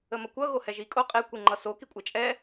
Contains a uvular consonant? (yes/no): yes